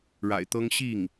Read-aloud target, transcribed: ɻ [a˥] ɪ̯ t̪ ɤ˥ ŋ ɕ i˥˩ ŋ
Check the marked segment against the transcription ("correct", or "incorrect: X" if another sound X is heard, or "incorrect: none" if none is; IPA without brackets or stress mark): incorrect: a̰˨˩